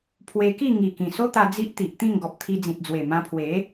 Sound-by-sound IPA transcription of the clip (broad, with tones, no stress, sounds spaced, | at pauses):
pʰ w e˧ k i˥˧ ŋ i˨˩ k ĩ˨˩ s o˦ t̪ a˧ d͡z i˦ ʔ t̪ i˨ ʔ t̪ ĩ˥˧ ŋ ɡ ɔ˨ p̚ t̪ʰ i˧ d͡z ĩ˨ t̚ d͡z w e˨˩ m ã˧ pʰ w e˨˦